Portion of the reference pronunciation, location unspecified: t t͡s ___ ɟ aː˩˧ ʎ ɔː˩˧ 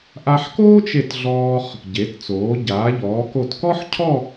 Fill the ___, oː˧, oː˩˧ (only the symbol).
oː˩˧